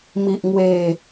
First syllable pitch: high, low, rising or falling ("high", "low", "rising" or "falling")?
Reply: low